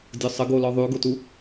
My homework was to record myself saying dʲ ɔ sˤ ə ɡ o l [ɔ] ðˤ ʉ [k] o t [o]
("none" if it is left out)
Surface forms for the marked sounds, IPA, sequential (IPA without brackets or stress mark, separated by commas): ɔ, ɡ, u